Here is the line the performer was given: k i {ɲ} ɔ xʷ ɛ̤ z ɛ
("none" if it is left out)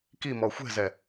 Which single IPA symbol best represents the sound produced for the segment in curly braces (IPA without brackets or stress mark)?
m